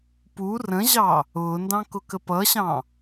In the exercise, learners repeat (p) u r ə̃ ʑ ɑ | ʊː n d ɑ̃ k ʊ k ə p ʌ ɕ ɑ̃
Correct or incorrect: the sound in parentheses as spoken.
correct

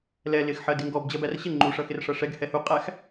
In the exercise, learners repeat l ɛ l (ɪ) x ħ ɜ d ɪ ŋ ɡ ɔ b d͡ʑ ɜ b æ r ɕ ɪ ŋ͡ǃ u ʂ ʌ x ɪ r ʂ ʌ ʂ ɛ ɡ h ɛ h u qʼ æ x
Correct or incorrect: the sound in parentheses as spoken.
correct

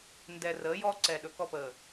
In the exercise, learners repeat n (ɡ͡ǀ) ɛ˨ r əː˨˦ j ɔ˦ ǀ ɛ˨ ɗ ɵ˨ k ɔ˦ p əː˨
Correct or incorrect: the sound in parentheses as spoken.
incorrect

